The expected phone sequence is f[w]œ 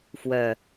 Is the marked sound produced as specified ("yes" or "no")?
yes